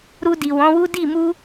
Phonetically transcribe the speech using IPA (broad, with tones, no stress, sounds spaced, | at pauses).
ɾ u˧ d i˨ w ɔ̃˨˦ w u˦ d i˦˨ m u˧